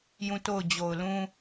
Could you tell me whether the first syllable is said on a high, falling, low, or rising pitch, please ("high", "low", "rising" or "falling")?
falling